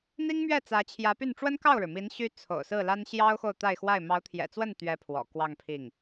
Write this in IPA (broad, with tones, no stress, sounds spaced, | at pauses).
n̪ i˥ ŋ m ɥ ɛ˥˩ t͡s ä˧˥ t͡ɕʰ j ä˧˥ p y˥˩ n ʈ͡ʂ w ə˥ n k ɑ˥˩ ʊ̯ ɻ ɻ̩˩ m i˧˥ n ɕ y˥ t͡sʰ o̰˨˩ ʊ̯ s ɹ̩˥˩ l a˥ n ɕ j ɑ˥ ʊ̯ x o˥˧ ʊ̯ t̪ a˥˧ ɪ̯ x w a˥˩ ɪ̯ m ɑ˧˥ ʊ̯ t̪ʰ j ɛ̰˨˩ t͡s w ə˥˩ n t̪ ɥ ɛ˥ pʰ w ɔ̰˨˩ k w ɑ˥˧ ŋ pʰ i˥˩ ŋ